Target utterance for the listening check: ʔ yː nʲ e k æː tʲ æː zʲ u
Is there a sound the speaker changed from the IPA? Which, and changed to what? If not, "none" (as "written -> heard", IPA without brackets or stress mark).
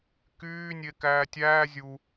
ʔ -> k